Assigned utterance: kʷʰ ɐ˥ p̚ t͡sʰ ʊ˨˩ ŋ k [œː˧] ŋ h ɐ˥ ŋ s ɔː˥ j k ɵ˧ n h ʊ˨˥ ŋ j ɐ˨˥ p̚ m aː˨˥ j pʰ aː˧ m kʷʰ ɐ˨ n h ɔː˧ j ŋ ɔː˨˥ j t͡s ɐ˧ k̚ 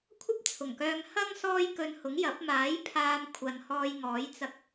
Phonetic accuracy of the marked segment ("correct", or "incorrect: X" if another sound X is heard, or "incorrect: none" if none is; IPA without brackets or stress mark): correct